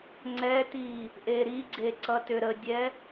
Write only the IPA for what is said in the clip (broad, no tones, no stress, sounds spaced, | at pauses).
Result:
ŋ͡ǀ ɛ t i | ʔ e ɾ i ɡ͡ǀ e ǀ ʌ t ʏ ɾ ə dʲ ɛ